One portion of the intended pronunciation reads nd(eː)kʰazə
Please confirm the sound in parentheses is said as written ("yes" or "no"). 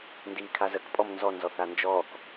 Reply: no